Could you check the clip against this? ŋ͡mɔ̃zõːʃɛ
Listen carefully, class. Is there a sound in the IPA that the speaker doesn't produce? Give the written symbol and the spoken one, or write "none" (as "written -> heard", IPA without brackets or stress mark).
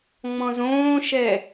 none